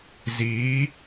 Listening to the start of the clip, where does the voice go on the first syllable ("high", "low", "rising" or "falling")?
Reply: rising